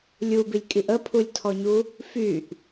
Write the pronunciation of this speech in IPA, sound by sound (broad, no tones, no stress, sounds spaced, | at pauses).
lʲ u b i lʲ kʼ i ʔ ə pʰ u lʲ tʰ ɔ ɲ u | f y ʔ